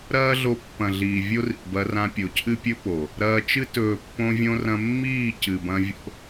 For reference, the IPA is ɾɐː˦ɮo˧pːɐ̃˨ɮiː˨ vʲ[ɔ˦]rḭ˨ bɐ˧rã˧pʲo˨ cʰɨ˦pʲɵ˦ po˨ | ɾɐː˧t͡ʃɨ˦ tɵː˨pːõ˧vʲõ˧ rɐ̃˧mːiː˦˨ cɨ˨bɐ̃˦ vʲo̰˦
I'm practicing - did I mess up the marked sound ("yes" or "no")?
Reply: yes